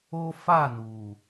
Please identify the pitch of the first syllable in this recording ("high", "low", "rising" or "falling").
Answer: high